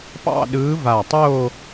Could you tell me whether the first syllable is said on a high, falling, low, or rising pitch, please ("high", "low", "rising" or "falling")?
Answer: falling